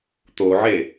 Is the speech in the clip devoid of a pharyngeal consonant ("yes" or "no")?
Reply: no